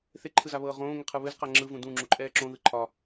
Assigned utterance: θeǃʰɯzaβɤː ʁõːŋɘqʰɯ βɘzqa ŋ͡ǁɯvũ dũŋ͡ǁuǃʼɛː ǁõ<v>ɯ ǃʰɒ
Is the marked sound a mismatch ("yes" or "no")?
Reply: yes